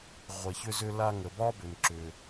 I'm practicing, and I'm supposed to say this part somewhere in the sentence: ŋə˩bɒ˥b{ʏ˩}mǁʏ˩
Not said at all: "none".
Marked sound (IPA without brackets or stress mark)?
ʏ˩